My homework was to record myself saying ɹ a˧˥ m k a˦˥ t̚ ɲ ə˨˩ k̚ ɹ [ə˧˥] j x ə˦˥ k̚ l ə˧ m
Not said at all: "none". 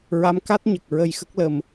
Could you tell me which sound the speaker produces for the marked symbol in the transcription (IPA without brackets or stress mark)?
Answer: ə˧